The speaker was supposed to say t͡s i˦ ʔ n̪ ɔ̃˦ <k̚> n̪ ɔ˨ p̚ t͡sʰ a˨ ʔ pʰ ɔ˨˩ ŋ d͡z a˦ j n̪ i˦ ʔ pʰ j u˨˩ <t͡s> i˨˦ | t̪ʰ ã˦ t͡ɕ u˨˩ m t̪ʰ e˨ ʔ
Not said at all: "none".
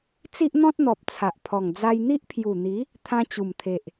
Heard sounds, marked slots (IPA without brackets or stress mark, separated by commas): t̚, n̪